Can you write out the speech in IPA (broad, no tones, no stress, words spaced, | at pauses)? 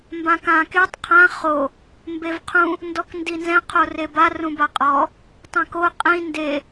mbãkãketˤ qʰã χo | mbevqʰũ | ndɔkndinzɛ̃ qʰoreba rũbaqʼɔ | tˤɛ̃ko qʼĩ nde